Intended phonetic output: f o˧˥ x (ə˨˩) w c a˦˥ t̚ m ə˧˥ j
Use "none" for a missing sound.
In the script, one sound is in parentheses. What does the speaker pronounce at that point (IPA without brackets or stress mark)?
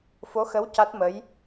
ə˧˥